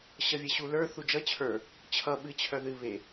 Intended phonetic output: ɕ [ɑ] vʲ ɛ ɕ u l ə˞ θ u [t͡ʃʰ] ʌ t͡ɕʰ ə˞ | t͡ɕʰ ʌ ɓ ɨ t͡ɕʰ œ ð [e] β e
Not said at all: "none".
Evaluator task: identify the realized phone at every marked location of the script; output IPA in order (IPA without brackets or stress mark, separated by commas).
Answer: ʌ, d͡ʒ, ɨ